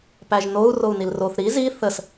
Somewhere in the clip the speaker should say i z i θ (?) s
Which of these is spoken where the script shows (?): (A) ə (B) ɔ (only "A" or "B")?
A